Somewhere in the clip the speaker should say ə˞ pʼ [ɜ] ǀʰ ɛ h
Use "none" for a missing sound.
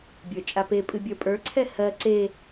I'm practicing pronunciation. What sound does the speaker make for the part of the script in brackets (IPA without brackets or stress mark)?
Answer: ə˞